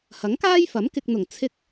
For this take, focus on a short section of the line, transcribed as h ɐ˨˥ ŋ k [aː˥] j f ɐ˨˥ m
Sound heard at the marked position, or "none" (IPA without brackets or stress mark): aː˥